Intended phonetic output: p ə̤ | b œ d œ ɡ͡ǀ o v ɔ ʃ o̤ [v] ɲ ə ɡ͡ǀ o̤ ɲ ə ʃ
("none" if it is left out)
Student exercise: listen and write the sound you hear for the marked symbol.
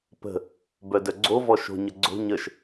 none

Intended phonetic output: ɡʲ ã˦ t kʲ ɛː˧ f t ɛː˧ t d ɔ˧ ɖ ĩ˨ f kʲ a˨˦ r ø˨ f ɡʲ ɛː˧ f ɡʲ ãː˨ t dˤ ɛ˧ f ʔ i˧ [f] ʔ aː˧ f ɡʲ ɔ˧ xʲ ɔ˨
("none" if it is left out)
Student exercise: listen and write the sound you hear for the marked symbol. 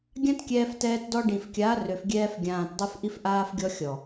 f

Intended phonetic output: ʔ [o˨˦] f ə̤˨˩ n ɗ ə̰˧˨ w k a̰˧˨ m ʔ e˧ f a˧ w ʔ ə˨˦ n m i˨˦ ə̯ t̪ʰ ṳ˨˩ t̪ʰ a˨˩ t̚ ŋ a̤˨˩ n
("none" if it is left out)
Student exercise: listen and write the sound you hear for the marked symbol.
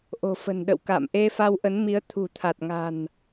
o̤˨˩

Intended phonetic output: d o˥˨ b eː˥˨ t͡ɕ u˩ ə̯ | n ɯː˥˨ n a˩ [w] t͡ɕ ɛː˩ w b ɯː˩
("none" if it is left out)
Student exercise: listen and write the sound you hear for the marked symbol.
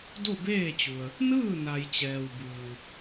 j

